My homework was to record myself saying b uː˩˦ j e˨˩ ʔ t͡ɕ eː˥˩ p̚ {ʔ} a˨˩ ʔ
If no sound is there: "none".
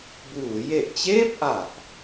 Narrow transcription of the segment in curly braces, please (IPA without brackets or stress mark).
ʔ